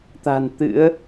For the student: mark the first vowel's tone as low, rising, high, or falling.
low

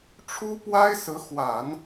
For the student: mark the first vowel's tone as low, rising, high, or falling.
high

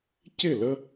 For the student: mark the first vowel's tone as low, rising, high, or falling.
falling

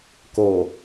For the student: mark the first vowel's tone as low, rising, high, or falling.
low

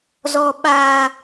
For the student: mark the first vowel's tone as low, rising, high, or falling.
high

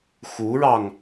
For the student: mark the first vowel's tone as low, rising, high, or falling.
rising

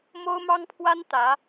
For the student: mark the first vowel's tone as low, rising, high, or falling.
high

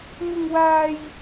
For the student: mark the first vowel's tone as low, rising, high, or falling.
high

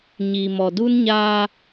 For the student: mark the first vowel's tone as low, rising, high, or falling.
low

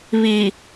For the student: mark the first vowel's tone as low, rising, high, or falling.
low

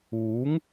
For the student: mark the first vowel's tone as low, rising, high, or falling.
rising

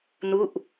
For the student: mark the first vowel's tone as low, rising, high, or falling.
falling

